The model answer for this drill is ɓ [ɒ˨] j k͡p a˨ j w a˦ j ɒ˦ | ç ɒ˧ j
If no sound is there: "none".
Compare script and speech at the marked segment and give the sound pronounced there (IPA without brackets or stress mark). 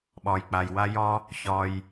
ɒ˨